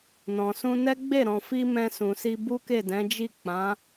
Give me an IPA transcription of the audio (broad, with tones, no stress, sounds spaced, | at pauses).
n ɔ̃˨ s ũ˧ n ɛ˦ ɡ͡b e˦˨ ɾ ɔ̃˨ f i˧ m ɛ̃˧ s ũ˨ s i˧ b u˦ k e˦˨ d ɛ̃˨˦ d͡ʒ i˦˨ k͡p ã˨˦